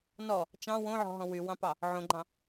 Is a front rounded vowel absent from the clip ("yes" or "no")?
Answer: no